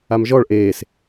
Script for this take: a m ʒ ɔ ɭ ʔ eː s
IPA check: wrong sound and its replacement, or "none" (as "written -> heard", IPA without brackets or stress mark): none